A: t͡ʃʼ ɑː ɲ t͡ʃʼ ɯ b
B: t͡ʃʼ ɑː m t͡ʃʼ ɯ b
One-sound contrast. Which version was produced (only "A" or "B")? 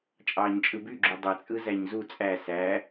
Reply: A